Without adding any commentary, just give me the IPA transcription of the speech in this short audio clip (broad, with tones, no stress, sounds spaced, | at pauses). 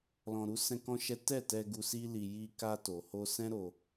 l ɔ̃˧ ɾ u˦ s ɛ̃˦ k ɔ̃˦ ʃ ɛ˦ t ɛ˦˨ t ɛ˧ ɡ u˧ s i˦ l i˧ j i˧ k a˧ t o˨ h o˧ s ɛ̃˦ ɾ o˧